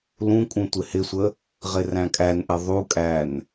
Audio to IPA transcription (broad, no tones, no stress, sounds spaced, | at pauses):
l ũ kʼ ũ tʷ ɪ h ɪ sʷ ə | ʁ ɪ r æ̃ kʼ æ n ʔ ɪ ðˤ u kʼ æ n